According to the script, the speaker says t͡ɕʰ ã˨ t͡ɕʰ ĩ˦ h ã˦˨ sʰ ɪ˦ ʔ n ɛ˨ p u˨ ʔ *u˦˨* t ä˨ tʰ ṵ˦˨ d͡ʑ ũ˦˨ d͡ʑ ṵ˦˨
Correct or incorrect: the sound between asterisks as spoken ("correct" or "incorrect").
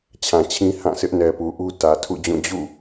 incorrect